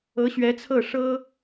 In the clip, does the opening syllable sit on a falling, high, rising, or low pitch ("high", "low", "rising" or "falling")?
rising